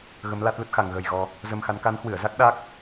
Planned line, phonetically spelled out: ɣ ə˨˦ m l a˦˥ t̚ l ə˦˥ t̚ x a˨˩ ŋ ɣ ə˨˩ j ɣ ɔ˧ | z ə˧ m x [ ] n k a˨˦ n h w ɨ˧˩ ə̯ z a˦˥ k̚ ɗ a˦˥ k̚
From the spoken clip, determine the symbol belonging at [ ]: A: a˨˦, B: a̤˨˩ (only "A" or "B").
A